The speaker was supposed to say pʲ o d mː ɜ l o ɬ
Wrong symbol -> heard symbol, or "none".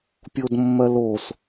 ɬ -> s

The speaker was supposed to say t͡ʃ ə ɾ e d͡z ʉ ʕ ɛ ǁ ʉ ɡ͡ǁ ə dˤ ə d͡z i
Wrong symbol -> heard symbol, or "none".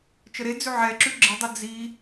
none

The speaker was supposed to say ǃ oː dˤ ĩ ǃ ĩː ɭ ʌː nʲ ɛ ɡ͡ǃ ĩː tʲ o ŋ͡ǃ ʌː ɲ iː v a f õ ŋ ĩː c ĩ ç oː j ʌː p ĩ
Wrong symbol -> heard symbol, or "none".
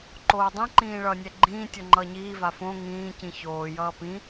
none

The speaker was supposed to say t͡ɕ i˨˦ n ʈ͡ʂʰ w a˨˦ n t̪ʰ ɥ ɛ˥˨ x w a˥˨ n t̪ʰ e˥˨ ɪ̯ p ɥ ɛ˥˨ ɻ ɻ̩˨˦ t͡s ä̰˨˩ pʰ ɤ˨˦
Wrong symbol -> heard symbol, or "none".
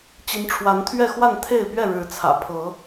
t͡s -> t͡sʰ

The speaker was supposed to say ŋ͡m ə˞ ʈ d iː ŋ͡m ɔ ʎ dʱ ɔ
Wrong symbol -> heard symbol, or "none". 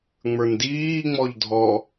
ʈ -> n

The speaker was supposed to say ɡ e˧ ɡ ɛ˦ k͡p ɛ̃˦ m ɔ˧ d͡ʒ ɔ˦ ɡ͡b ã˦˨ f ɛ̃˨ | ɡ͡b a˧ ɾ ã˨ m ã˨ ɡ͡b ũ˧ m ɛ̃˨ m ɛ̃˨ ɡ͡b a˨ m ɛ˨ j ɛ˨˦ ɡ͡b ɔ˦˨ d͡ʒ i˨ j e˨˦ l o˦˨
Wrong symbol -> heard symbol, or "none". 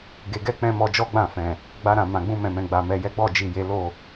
none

